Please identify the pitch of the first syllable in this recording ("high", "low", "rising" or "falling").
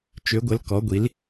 rising